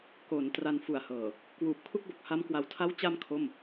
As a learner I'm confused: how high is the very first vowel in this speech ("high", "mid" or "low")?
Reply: mid